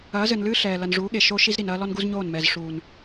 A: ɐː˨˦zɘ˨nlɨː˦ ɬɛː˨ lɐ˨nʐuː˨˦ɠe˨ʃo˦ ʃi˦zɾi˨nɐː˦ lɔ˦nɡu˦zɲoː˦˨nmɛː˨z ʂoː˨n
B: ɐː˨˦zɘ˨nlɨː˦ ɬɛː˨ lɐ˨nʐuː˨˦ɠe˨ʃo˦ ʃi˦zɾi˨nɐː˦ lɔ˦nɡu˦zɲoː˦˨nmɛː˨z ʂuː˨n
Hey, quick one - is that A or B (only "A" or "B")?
B